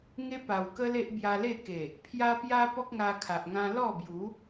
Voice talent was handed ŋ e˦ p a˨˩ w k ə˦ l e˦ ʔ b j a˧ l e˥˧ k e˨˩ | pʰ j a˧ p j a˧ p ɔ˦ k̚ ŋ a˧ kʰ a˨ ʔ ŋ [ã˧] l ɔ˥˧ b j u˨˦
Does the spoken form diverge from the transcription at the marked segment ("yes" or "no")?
no